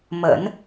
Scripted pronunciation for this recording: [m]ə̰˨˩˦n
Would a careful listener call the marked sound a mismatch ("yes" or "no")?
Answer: no